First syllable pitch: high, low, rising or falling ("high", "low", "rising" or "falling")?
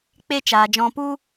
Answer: high